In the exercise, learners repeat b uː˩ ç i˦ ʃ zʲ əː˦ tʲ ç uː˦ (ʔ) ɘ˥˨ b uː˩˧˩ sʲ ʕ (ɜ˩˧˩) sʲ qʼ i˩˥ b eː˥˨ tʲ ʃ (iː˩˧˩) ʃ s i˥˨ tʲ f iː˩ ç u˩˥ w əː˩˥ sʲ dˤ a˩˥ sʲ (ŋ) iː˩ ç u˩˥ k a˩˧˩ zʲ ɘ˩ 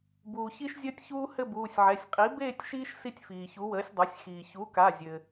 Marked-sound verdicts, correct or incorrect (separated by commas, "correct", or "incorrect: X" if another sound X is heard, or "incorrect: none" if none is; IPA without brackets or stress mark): incorrect: h, incorrect: ɛ˩˧˩, incorrect: iː˦, incorrect: x